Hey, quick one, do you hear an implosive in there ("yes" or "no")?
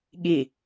yes